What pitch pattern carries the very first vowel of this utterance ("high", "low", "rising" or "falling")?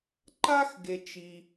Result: high